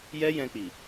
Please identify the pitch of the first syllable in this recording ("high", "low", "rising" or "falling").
high